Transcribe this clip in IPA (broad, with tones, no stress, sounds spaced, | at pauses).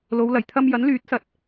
l o˨˧ w l ɐ˨˩ j t̪ʰ ɐ˧ m j ɐ˨˥ n l yː˨˥ t̚ s ɐ˨ t̚